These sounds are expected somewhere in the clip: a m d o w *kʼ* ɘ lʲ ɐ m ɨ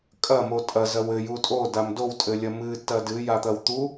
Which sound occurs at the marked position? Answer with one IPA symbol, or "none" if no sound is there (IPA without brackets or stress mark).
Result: tʼ